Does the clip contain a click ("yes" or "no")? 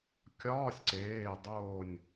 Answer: yes